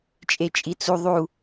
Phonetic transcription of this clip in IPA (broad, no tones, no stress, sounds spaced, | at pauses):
t͡ʃʼ e t͡ʃʼ i t͡s u ðˤ u